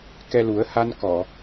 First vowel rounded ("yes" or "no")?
no